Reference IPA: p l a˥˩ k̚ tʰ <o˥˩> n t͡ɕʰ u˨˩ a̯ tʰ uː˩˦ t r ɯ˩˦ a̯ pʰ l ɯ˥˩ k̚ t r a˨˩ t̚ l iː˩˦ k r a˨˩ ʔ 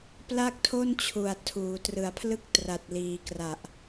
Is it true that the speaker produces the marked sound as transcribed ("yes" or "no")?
yes